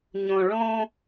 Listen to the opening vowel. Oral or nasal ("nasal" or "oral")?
nasal